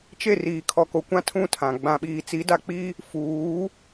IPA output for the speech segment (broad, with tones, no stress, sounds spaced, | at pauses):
t͡ʃ e˦˨ r iː˨ kʰ ɔ˨ k o˨ kʷ ã˦ tʰ ũ˦˨ tʰ ã˨ ɡ͡b ã˨ ɓ iː˨ t͡s i˨˦ d a˨ k͡p i˦ | f uː˨˦